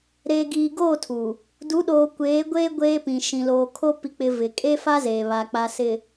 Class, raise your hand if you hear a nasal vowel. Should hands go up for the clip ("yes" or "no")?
yes